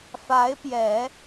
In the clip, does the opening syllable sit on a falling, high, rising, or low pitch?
rising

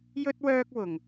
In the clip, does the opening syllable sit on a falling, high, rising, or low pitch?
high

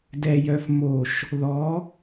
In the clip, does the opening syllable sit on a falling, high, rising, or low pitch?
low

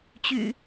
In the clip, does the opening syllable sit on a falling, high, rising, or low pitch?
low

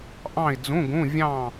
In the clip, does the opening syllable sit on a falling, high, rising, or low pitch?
falling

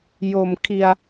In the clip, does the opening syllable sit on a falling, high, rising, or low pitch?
low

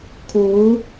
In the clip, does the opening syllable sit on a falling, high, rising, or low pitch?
rising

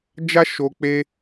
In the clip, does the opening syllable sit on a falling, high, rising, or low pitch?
high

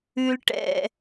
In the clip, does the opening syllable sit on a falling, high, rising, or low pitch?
low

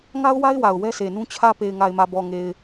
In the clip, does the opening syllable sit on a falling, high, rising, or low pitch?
high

